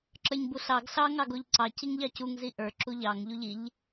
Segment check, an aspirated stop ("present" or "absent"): absent